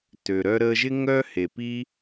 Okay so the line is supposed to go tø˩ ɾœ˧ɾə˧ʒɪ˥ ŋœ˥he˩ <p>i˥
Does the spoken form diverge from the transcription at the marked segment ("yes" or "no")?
no